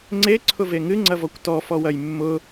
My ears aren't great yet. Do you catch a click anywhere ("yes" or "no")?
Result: yes